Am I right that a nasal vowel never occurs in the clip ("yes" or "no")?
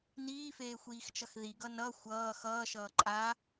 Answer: yes